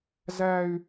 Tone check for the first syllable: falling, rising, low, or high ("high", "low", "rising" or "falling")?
high